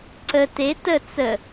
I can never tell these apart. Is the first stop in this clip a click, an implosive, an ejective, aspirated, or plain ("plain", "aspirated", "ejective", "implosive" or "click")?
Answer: click